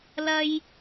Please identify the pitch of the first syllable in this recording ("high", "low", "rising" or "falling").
high